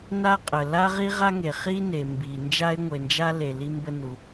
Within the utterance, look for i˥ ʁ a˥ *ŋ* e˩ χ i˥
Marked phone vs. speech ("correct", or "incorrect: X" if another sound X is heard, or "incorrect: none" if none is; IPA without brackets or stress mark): correct